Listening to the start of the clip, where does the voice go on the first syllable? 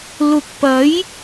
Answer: rising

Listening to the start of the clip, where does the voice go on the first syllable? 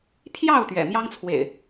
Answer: falling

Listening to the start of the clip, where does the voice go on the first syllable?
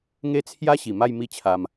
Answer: high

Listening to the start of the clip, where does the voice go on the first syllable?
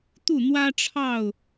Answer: falling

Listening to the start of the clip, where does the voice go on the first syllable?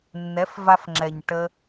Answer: rising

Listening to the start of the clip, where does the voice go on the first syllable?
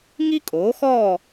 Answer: high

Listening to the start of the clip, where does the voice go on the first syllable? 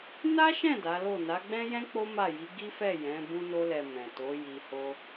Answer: high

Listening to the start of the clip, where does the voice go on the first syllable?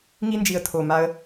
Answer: high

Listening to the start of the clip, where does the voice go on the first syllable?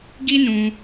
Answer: high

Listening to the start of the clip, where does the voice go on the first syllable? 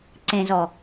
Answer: low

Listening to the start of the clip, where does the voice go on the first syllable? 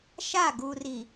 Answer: falling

